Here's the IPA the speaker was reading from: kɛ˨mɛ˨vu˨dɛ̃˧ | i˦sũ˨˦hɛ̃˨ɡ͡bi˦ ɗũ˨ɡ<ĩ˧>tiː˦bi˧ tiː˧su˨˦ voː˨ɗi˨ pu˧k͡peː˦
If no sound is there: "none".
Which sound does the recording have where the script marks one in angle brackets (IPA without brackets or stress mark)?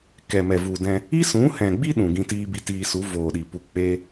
ĩ˧